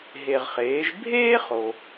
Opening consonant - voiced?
yes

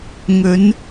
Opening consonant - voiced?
yes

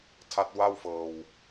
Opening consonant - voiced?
no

